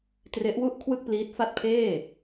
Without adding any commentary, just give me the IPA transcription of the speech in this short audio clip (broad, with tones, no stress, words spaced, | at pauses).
tre˦˥ʔwu˥˩ʔ kʰwɯ˥˩k̚pliː˦˥t̚fa˥˩t̚ pʰeː˥˩